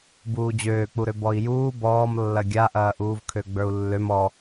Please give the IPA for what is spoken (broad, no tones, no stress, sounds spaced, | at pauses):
b uː d͡ʑ øː k͡p u ɾ ø b ɔ i̯ j uː b ɔː m lː ɐ ɡʲ a ʔ ɐː ʔ uː v kʰ ø ɡ͡b ə˞ u̯ lː ø m ɔ